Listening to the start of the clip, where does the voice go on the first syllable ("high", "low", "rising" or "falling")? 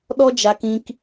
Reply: high